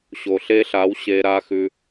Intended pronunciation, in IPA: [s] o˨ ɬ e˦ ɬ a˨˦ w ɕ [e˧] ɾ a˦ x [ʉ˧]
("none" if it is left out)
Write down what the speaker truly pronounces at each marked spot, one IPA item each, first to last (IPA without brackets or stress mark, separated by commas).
ɕ, e˧, ʉ˧